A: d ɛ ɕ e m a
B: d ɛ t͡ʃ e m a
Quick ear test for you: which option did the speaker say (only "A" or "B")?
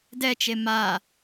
B